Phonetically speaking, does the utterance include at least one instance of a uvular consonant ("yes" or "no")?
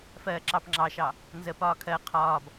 yes